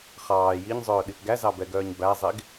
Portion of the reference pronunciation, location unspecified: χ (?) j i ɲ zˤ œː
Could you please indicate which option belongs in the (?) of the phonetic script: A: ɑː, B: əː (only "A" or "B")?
A